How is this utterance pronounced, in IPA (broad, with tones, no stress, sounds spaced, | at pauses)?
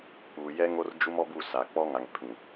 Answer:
k͡p uː˨ j ɛ˦ ŋ o˦ r d͡ʒ u˦ m ɔ˦ b u˦˨ s a˨ k͡p ɔ˦ ŋ a˨ ŋ pʰ ĩ˨